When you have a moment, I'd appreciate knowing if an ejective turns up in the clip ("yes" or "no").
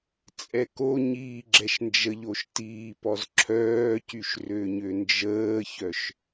yes